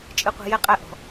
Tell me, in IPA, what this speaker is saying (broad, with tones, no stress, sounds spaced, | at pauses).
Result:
t͡ʃʼ ɨ˦ qʷ ɛ̤˦ j ɛ˦ qʼ æ˦ ʔ ɔ̤˨˦